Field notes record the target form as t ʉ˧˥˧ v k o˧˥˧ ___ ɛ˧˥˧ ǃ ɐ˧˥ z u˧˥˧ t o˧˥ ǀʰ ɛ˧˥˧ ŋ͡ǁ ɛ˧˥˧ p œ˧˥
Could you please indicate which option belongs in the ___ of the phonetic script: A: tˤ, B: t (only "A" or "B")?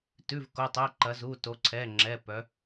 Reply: A